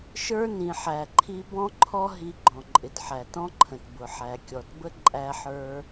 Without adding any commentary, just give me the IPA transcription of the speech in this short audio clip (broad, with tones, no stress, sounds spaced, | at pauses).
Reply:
ʃ ə˞˥ n ĩ˩ ħ æ˩ ǃʰ i˧ b ɔ̃˥ ǃʰ ɔ˥ ɦ i˧ ɡ͡ǃ ɔ̃˩ ǃʼ ɪ˩ t ħ æ˩ t ɔ̃˥ ǃʰ ə̃˩ t b ʊ˩ ħ æ˩ kʲ ɔ˩ t b ə˥ ǃʼ æ˧ ħ ə˞˧